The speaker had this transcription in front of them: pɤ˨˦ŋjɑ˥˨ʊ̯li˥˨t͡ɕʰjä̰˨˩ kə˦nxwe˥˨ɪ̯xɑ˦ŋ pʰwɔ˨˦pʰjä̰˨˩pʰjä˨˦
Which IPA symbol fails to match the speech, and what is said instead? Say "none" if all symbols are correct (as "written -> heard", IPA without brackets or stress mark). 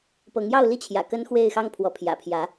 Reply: none